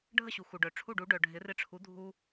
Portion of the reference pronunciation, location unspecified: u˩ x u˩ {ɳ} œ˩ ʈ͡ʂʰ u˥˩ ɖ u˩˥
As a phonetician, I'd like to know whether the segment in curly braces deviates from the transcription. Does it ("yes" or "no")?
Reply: yes